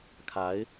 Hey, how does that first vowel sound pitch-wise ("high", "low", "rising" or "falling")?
rising